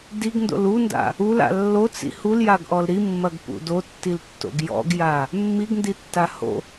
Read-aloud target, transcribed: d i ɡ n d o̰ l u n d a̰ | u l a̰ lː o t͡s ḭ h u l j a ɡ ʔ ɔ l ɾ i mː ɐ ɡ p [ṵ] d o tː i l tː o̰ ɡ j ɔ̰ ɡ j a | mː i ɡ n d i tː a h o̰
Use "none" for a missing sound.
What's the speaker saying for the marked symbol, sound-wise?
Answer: ṵ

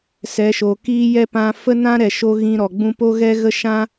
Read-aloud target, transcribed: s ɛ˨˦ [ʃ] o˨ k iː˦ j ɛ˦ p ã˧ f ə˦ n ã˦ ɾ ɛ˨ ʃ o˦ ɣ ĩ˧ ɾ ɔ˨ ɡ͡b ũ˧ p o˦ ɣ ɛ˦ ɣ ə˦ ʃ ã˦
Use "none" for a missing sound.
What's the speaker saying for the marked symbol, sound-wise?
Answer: ʃ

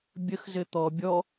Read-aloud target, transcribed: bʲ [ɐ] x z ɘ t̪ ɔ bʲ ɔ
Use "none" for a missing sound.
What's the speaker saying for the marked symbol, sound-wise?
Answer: ə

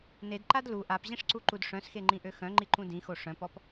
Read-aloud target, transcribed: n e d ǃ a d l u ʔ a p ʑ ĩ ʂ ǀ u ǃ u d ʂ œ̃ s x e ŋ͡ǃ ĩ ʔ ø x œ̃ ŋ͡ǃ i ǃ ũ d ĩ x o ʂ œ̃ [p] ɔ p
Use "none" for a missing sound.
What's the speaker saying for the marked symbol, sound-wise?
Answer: p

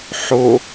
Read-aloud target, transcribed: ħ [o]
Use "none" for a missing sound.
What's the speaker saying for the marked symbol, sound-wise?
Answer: o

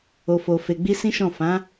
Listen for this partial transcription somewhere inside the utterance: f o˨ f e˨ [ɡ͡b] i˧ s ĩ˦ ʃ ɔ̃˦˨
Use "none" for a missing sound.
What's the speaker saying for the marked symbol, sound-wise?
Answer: ɡ͡b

